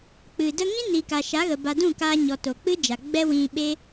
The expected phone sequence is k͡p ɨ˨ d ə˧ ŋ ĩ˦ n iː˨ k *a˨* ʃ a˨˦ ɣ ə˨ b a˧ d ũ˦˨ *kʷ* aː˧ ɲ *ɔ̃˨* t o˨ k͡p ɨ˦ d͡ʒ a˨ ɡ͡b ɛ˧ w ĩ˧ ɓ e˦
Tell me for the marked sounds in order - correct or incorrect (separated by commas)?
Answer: correct, incorrect, incorrect